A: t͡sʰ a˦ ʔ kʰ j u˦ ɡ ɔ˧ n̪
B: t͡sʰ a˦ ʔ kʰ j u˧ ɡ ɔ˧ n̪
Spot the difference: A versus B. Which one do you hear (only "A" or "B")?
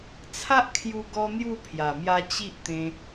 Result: B